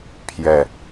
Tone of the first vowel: low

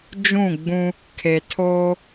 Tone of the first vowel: falling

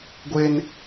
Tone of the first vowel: high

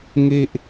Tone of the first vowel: high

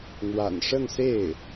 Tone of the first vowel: low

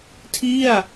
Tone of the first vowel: falling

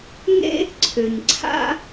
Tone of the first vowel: high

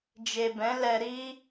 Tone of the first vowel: low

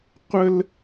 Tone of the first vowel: high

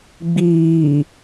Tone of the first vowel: low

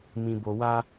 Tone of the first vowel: low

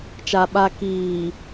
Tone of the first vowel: low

